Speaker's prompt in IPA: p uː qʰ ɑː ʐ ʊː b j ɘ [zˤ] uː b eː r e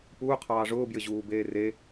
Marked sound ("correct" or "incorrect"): incorrect